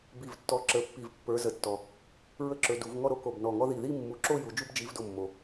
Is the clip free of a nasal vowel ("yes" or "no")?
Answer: yes